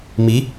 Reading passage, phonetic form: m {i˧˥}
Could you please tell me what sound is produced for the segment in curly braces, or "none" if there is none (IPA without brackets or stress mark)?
i˧˥